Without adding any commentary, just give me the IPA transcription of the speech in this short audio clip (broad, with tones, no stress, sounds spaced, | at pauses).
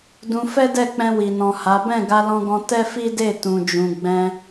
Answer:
d ũ˧ f ɛ˦ d ɛ˦˨ k͡p ɛ̃˧ w i˨ n ɔ̃˨ h a˨˦ b ɛ̃˦˨ ɡ a˧ l ɔ̃˧ ɡ ɔ̃˧ t ɛ˦ f i˦ d e˦˨ t ũ˨ d͡ʒ ũ˨ ɡ͡b ɛ̃˧